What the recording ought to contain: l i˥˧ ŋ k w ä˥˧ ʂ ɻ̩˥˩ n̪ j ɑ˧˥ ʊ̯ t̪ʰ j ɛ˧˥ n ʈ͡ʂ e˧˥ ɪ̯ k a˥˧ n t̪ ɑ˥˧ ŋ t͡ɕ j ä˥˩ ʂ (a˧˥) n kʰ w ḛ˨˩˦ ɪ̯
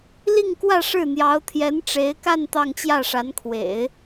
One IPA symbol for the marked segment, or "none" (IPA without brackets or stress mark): a˧˥